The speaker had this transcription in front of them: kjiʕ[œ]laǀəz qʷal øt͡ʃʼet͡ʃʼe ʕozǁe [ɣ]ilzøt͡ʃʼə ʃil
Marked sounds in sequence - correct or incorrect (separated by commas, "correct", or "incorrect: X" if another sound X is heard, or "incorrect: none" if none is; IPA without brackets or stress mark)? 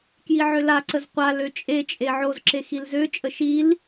incorrect: ø, incorrect: x